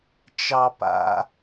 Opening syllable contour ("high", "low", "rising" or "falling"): high